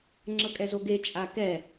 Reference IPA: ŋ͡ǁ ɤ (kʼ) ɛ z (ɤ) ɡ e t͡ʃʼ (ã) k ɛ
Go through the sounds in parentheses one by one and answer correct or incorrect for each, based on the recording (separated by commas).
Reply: correct, incorrect, incorrect